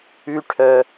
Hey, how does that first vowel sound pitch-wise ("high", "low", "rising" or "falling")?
high